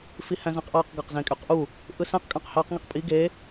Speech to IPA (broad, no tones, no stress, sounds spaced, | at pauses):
f i h æ̃ z æ̃ q ʔ ɑ q ɡ ɑ q z ẽ kʼ y q ʔ u | ʔ ɯ s æ̃ q kʼ ɑ̃ q h ɑ q ŋ i q pʼ i ɡ e